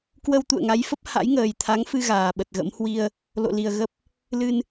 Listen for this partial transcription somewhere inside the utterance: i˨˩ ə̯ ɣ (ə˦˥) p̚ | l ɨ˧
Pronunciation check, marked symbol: correct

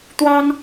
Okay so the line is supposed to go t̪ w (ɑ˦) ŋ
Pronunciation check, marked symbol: correct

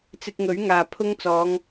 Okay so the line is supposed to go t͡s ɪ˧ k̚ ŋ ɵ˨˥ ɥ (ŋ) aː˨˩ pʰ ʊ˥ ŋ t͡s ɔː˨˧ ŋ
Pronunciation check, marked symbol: correct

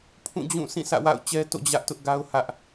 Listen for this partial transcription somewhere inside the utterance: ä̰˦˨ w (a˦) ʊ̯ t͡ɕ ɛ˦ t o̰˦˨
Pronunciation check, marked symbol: incorrect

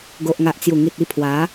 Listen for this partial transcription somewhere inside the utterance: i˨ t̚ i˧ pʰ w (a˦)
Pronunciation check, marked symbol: incorrect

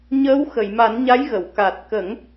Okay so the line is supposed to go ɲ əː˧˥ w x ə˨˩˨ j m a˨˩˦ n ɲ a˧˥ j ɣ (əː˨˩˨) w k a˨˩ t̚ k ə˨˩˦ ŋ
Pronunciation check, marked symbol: incorrect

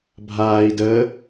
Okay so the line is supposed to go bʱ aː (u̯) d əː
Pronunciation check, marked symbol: incorrect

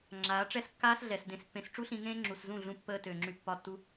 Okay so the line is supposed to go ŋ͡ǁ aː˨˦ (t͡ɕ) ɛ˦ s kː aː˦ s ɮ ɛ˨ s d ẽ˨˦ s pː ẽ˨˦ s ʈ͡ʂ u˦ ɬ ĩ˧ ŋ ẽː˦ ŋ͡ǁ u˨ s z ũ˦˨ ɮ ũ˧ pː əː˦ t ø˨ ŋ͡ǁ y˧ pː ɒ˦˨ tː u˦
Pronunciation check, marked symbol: incorrect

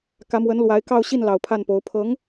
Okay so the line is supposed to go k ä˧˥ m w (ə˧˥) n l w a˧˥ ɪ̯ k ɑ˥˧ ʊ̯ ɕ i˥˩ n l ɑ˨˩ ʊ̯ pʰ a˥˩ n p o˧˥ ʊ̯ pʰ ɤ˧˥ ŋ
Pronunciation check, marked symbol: correct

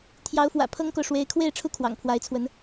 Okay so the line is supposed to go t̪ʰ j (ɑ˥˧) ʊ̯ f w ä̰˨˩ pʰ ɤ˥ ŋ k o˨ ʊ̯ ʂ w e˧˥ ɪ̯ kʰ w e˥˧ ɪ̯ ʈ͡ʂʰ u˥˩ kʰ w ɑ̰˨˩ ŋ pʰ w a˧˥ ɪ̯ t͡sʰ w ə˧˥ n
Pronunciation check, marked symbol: incorrect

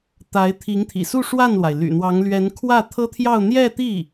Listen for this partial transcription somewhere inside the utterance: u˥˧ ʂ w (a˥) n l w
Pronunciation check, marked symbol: incorrect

